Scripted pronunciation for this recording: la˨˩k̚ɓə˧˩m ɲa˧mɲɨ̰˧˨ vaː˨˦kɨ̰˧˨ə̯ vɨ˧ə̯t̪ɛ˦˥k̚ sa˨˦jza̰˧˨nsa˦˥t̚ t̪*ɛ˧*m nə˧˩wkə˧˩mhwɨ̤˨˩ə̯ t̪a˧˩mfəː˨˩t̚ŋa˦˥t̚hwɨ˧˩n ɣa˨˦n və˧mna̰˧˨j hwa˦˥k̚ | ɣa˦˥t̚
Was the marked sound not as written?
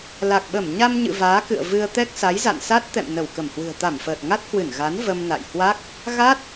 yes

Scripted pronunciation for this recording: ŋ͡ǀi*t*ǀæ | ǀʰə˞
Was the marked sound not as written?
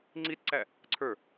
no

